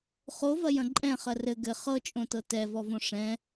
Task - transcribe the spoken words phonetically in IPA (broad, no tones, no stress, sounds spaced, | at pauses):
χ o v ɐ j ɐ̃ ǃʼ ɛ̃ χ ɐ r ɘ ɡ ɘ χ ɤ t͡ʃʼ õ t ɤ t ɛ v ɔ v õ ʂ ɛ̃